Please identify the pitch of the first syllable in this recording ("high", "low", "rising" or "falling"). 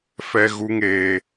high